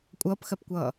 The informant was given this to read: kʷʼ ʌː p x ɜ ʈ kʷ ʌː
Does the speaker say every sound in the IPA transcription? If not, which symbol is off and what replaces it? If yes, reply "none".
ʈ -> p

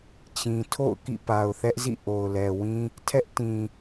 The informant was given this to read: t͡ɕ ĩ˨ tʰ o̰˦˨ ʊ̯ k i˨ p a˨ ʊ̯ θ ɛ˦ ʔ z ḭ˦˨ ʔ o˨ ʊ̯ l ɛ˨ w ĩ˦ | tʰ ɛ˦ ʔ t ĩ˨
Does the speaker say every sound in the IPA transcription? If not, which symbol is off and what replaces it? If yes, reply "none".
i˨ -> ḭ˦˨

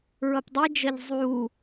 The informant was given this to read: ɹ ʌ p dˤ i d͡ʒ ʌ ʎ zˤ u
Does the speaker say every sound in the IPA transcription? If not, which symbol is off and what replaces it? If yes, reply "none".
none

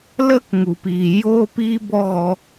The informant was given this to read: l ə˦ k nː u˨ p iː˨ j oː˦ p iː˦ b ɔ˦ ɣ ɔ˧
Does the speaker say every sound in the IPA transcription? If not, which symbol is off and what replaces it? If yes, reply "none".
nː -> ŋ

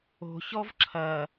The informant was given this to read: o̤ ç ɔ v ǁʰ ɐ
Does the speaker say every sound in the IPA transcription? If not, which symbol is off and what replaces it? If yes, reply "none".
none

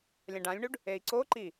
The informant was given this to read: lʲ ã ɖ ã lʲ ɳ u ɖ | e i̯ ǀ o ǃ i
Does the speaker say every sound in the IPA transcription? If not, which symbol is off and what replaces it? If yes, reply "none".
none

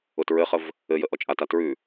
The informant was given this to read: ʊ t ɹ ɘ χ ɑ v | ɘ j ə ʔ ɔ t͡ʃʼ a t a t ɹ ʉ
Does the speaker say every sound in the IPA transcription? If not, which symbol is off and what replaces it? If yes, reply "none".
ɑ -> ə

